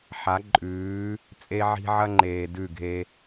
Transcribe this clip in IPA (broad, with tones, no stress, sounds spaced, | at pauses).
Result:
ħ a˨˦ ǃʼ ʉː˨˦ | t͡sʼ e˦ ʕ i̤˦ ʕ ɐ˦ ŋ͡ǃ eː˨ d ʉ˦˨ ɡʱ e˦